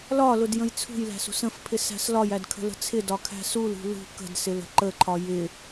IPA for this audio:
lɒlʊd jə̃jt͡sʰṳjlæ̤s ṳsə̃fpʰɪ sæ̤slɒjæd kʰə̤lə̤t͡sʰɪdɒ kʰæ̤sulṳ lṳ kə̤dsɪl ə̤ǃəǃʰɒ jɪ

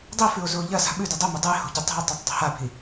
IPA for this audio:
dˤifʉo̯ zuo̯ʎɐsa̤ ɓʉdɵ dˤomɐ dˤɨe̯ho̤ ɟetˤe̤o̯tˤetˤ dˤi̤habʱi

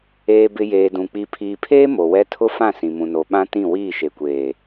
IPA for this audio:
eː˨bɪ˨ jeː˨dũ˨ k͡pi˨pʰiː˨pʰeː˦ mo˨wɛ˦ tʰʊ˦fã˦˨ sĩ˨mũ˨no˨ ɓã˦tĩ˦˨ wiː˦˨ʃe˨kʷeː˨

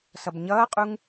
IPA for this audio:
sʌbɲʌːqʼuŋ

